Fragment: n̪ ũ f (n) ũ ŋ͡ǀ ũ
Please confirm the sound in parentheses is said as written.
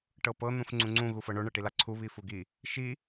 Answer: no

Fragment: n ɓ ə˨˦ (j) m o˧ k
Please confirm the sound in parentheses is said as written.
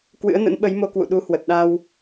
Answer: yes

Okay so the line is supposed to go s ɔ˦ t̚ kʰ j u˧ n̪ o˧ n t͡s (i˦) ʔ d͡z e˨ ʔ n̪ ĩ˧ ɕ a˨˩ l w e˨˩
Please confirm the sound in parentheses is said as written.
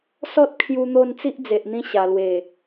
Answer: yes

